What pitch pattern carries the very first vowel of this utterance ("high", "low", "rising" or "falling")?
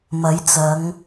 rising